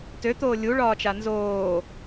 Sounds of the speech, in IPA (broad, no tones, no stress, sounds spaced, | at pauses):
t ø t̪ oː lʲ u ɭ ɒː t͡ʃ a n z oː